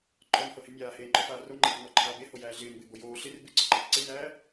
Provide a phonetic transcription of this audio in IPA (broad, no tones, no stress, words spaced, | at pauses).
ǃʼɔnhɤhɪ mʲaːheːŋ͡ǃɔfaː roŋ͡ǃernɔǃʰaːb ehojæː ɮɪːnbɪːbo joː ɬɪr bɪǀɪǃab ǀenæː